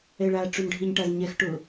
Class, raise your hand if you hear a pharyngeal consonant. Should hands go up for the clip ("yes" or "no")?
no